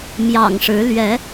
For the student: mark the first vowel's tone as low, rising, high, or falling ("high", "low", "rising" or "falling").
low